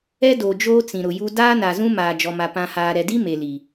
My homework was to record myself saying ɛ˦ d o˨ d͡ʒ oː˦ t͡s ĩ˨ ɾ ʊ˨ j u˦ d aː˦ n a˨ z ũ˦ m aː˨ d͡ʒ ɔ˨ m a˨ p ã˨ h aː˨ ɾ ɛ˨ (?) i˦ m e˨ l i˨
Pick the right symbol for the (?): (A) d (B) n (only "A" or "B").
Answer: A